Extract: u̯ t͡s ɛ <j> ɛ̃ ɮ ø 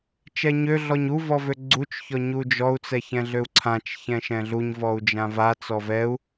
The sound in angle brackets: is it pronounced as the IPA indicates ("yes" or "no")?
no